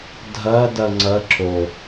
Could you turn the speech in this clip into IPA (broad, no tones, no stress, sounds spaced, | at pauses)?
dʱ ɐ d ɐ ŋ͡ǀ ɐ ǁ o